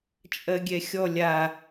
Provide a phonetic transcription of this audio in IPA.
t͡ʃʼ ɜ ɡʲ ɛ xʲ ɔ lʲ a

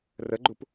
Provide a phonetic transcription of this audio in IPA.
r ə ɡ͡ǃ u p

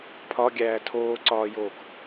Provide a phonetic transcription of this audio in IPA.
pʰ ɒ ɡʲ æː tʰ oː ǀ ɒː j oː k

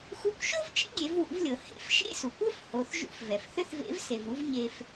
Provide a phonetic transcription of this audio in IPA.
x u˧ kʷ ʃ o˥ v t͡ʃ ḛ˥ ɡʲ e˩˧ v w ṵ˩˧ v lʲ ɤ˩ h ḛ˧˥ f ʃ ḛ˥ s u˩ kʷ ɵ˥ f h o˩˧ θ ʒ ṵ˧˥ f v ɛ˩ f θ ʏ˥ θ v ḛ˧˥ v s e˩ v u˧˥ v ɲ e˧ f

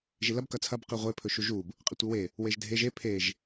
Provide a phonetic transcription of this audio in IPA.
ʒ i l ɐ b k ɐ t͡sʰ ɐ b q i ʁʷ e pʰ ɵ ʃ u ʒ u b | qʼ e tʷ i w e | w e ʒ dʱ e ʒ e pʰ e ʒ

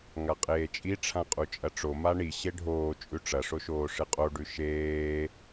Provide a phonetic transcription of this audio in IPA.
ŋ a qʼ eː t͡ʃʼ i ʈ͡ʂʰ ã qʼ u t͡ʃʼ ɐ ʈ͡ʂ o m a ɳ i ɕ e ɖʱ oː t͡ʃʼ ʉ ʈ͡ʂ ɐ ʂ o ʃ oː ʂ ɨ qʼ o ɖ ʉ ʃ eː

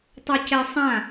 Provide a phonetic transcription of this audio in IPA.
tˤ ø c ɛ sˤ ã

